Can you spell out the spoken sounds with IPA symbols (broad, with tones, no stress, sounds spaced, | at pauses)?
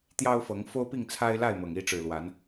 t̪ j ɑ˦ ʊ̯ f ɤ˨˦ ŋ f o˦ ʊ̯ p i˥˨ ŋ t͡sʰ a˦ ɪ̯ l a˥˨ ɪ̯ m ɤ˨˩ ŋ i˥˨ ʈ͡ʂ ɻ̩˨˩ l w a˨˦ n